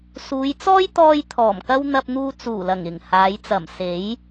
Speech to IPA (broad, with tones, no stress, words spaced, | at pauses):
suː˨˧jt͡sɔː˥jt̪ɔː˧j t̪ʰɔː˨˩mkɐ˥w n̪ɐ˧p̚n̪uː˧ t͡suː˨˩lɐ˨˩ŋɪ˨˩ŋ haː˨˧j t͡sɐ˨˩mse˨˥j